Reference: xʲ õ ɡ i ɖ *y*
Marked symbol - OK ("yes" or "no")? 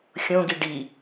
no